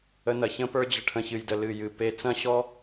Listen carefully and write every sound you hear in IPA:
ə˧nɐ˨çə̃˦pə˞˦ d͡ʑə˨ʈʰə̃˨çɨ˨jdə˨ lɨ˨jɨ˨ pe˦ t͡sɐ̃˦ɕɔ˦

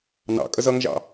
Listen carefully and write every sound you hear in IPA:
nɑ̰ kʼəzʌŋʒɑ̰

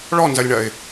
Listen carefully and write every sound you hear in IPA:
ɭɔnzɐlʲɳɐɪ̯

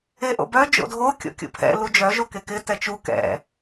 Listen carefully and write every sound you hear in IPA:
eʔo̰bœ d͡ʒo̰dʱo kʲo̰kʲṵpʰɛ̰ lud͡ʒœ ʒokekɪ tɛt͡ʃu kɛ̰

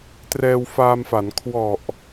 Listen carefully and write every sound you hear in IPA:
trɛː˧wfaː˧mfa˩˦n kʰwɔ˨˩ʔ

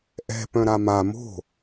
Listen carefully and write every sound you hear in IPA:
ʔɛ̤pœ̃ ɾama mo̤

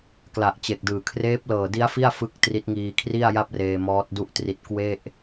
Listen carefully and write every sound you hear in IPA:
kla˨˩ʔt͡ɕe˨˩k̚dɯː˨˩ kʰreː˦˥p̚lɤː˨˩di˦˥a̯ fi˥˩a̯fɯ˦˥k̚ tri˦˥t̚ ŋiː˧kʰri˥˩a̯ja˥˩p̚reː˧ mɔː˦˥t̚ du˥˩ʔtri˦˥t̚ kwe˥˩ʔ

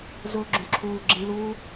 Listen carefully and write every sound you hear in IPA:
zʊːɡ͡ǁũǁʰuːɡ͡ǁĩ luː

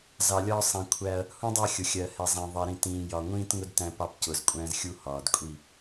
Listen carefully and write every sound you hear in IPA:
zɑ˨lʲɒː˦ sˤĩ˨ kʷʰæ˦ɐ̯ | hũ˦dˤɑ˦˨ xʲʊ˨xʲɜː˨ hɛ˨zˤɛ̃˨ ðˤɜ˨ɾĩ˨ tĩː˨ jɒ˨ ŋʷĩː˦tŋʊ˦d tæ̃˦pɑ˦p cʊː˨zkʷʼæ̃ː˦zxʲu˦ hɒː˨dkʷʼi˦˨

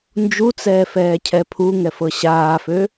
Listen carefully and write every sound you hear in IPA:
nd͡ʒut͡sɛː fɛːcʰɛpʰuŋɛ fɤɕaːfø

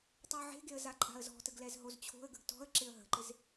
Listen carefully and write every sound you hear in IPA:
tˤoʕe̤ɡeə̯ zaǃʼa̤ə̯zɔ̤təɡ lɛzɦozt͡ɕʰo̤ə̯ɡəɡ tɔ̤ə̯ ǁɪə̯ɦə̤ǃɪz

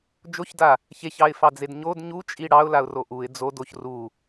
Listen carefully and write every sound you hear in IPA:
d͡ʒoçda | çeçɑɪ̯fɑd͡zed ɲod ɲut͡ʃʼi ɽɑʊ̯laʊ̯ro ʔuɪ̯ d͡zodoç ru

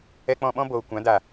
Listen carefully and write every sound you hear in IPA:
ɛ˦ k͡pɔ̃˧ɓɔ̃˦ boː˨kʷã˨˦da˨

